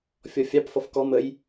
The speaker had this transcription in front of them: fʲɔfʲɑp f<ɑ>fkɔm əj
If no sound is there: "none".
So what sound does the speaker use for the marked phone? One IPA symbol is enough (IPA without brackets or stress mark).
ʌ